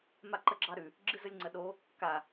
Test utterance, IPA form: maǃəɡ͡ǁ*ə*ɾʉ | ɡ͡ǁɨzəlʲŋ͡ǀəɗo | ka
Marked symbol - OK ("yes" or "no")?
no